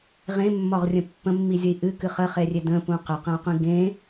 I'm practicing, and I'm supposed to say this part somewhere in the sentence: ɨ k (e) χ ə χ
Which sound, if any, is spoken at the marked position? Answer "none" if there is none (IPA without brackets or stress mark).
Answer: ɨ